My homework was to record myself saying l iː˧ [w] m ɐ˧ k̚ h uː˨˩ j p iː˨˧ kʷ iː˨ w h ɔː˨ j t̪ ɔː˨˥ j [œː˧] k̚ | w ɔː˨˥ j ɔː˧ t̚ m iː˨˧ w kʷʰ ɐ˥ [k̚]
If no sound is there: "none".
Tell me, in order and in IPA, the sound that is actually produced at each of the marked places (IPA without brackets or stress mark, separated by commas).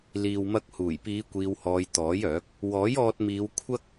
w, œː˨˥, k̚